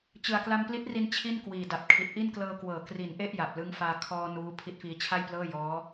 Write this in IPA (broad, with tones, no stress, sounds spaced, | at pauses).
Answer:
t͡ɕ ɯ˨˩ a̯ k l a˧ m p l i˦˥ t̚ r i˧ n t͡ɕʰ i˥˩ n k w iː˨˩ d a˨˩ p̚ kʰ i˨˩ t̚ ʔ i˥˩ n k l ɤː˧ k w ɤː˩˦ k r i˩˦ n ʔ e˥˩ ʔ j a˨˩ p̚ l ɯ˦˥ ŋ f aː˧ kʰ ɔː˧ n uː˦˥ pʰ i˦˥ t̚ f iː˧ t͡ɕʰ a˥˩ j p l ɤː˥˩ j ɔː˦˥